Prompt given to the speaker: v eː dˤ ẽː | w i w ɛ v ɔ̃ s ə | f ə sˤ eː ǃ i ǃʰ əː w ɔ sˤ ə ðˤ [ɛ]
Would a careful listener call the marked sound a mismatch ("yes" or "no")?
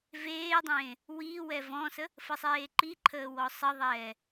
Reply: yes